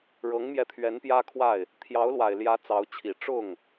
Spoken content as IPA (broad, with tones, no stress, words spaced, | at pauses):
ɻɤ˧˥ŋmjɛ˧t̪ʰɥɛ˧˥n pjä˥kʰwa˥˩ɪ̯ | t̪ʰjɑ˧˥ʊ̯lwa˨˩ɪ̯ljä˧˥ t͡sɑ˧˥ʊ̯t͡ɕʰi˨˩ ʈ͡ʂʊ˥˩ŋ